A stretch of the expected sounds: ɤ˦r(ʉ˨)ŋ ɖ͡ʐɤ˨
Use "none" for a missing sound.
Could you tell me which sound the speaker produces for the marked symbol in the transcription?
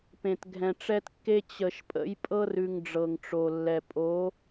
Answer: ʉ˨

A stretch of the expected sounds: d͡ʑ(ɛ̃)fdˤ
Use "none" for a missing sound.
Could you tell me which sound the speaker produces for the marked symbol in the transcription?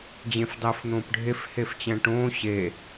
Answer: ẽ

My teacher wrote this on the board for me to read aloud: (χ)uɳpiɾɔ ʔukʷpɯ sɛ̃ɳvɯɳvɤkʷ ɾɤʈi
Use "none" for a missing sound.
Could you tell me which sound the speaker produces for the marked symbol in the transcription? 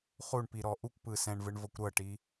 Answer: χ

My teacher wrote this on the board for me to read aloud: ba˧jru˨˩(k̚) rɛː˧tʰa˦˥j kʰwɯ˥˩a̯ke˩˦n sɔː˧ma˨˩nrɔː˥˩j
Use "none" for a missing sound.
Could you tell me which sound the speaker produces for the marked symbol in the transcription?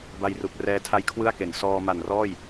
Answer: k̚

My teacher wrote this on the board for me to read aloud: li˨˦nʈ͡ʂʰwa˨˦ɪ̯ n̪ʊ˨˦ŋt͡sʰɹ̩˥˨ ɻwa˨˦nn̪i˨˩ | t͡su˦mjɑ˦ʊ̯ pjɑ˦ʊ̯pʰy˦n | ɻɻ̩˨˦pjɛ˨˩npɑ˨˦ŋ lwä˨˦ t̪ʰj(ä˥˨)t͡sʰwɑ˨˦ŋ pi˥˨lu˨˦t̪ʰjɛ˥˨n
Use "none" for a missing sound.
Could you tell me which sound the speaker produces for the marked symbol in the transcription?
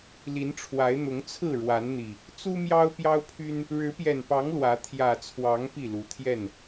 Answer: ä˨˩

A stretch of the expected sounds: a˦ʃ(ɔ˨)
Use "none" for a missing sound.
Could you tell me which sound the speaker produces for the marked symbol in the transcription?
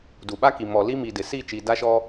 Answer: ɔ˦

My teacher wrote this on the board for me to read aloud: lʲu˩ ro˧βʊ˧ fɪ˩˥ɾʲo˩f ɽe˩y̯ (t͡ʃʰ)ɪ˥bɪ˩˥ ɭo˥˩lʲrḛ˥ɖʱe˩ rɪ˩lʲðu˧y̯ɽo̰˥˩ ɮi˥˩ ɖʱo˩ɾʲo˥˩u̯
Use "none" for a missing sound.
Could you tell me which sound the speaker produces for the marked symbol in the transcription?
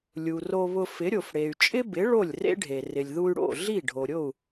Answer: t͡ʃʼ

